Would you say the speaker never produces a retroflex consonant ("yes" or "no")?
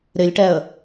no